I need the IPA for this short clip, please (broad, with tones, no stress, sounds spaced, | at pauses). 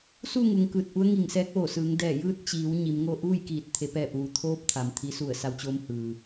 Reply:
s u˥˨ ŋ u˩ ŋ k ɯː˧˩ t̚ ʔ u˧˥ ə̯ ŋ i˧˩ ŋ s ɛː˧˥ k̚ ʋ oː˧˩ s ɯː˩˧ ŋ d ɛː˧˩ j ɯː˥˨ t̚ t͡ɕ iː˩˧ w ɲ i˩˧ m ŋ oː˥˨ ʔ uː˥˨ j k iː˧˩ t̚ t̪ʰ e˩˧ p ɛː˧˩ p̚ ʋ u˩ t̪ʰ oː˧˥ p̚ t̪ʰ a˩ m t̪ʰ i˩˧ s u˧˩ ə̯ s a˧˥ w t͡ɕ oː˧˥ m h ɯː˩